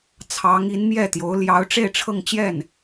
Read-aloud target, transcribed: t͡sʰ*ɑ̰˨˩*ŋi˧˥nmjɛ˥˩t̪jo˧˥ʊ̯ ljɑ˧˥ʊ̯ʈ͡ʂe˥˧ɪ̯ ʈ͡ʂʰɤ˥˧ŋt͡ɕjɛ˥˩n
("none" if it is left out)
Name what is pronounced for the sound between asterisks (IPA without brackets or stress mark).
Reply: ɑ˧˥